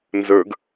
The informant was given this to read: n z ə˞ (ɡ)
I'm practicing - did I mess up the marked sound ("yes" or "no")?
no